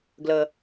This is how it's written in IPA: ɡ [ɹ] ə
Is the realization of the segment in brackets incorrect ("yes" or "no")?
yes